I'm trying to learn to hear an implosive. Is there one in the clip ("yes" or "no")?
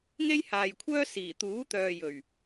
no